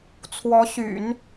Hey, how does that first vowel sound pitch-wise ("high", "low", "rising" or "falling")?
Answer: rising